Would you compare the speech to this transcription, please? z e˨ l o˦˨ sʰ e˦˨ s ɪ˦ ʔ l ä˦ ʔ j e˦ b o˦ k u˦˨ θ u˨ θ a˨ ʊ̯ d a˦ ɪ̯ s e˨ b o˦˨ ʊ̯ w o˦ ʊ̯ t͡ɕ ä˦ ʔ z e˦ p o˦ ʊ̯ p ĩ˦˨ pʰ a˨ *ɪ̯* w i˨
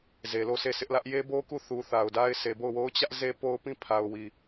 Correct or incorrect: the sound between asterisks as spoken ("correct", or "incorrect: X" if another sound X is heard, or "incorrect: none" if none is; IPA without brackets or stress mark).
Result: incorrect: ʊ̯